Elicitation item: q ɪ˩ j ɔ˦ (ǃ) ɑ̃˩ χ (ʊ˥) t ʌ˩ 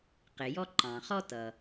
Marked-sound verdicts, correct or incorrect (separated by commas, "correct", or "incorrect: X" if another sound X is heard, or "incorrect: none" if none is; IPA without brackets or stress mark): correct, incorrect: ɔ˥